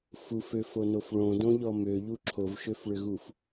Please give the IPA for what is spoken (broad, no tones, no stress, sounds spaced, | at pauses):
f u f ø f o n o f ɭ õ d õ ʎ ɔ m ø ʎ u ǁʰ o v ʃ ø f ɭ ʏ ɣ u f